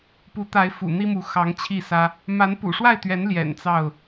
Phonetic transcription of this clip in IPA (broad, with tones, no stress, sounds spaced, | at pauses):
p u˨˦ t̪ a˨˦ ɪ̯ f ṵ˨˩ n̪ i˦ m u˨˦ x ɑ˨˦ ŋ t͡ɕʰ i˥˨ s ä˦ | m a˨˦ n p ṵ˨˩ ʂ w a˥˨ ɪ̯ t̪ ɥ ɛ˨˦ n l j ɛ̰˨˩ n t͡s ɑ˥˨ ʊ̯